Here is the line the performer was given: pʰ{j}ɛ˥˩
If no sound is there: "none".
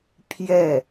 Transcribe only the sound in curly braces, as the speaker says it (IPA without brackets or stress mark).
j